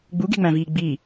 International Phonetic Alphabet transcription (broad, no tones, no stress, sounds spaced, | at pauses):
ɡ͡b u ɡ e̤ ŋ͡m æ̃ v iː ɡ͡b i